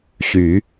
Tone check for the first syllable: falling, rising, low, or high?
rising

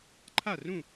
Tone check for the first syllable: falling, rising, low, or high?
falling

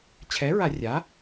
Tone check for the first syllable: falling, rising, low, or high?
rising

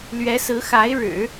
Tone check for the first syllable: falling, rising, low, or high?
rising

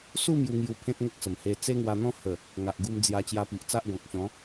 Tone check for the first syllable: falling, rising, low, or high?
falling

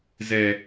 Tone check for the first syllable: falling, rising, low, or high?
low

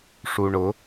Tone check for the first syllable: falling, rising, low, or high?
low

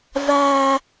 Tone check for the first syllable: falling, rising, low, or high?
high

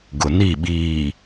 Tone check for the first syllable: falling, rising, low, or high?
low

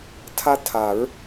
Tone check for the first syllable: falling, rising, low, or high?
high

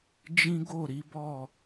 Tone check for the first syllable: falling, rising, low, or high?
high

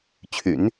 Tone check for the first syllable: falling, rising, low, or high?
low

